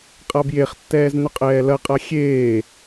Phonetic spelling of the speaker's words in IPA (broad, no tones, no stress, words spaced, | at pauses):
qʼabjeχtːɛːz nʏqʼɛːlɐqʼa xʲeː